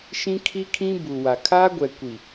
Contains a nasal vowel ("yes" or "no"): yes